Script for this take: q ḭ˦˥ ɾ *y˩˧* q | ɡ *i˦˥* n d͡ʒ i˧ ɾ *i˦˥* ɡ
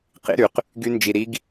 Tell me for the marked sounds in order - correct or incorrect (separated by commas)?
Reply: correct, incorrect, correct